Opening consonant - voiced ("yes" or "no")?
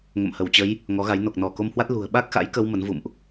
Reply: yes